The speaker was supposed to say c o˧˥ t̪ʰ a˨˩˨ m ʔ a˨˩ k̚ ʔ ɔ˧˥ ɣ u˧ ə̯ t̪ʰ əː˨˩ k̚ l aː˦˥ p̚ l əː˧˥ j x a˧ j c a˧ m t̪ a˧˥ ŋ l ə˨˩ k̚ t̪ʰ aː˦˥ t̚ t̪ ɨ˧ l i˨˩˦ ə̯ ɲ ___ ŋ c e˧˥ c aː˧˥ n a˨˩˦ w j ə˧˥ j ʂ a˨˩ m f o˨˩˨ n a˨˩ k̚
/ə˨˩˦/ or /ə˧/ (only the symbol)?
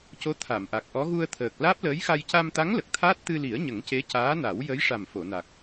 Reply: ə˨˩˦